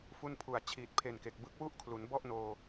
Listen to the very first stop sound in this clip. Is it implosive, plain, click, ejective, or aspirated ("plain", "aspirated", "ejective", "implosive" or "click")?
aspirated